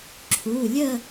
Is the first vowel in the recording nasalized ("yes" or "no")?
no